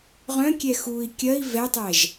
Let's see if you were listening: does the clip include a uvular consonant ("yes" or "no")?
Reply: yes